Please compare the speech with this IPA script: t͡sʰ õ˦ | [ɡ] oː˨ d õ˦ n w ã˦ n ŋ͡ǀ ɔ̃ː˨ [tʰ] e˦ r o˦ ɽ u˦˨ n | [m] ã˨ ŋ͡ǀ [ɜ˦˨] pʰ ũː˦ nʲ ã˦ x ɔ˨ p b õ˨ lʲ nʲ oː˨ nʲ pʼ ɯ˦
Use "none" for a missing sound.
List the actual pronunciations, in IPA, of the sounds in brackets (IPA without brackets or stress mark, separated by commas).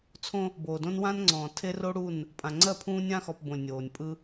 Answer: b, tʰ, pʼ, ɜ˦˨